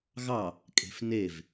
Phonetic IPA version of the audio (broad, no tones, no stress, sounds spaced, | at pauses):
ɣ ɑ | kʼ e̤ f n e v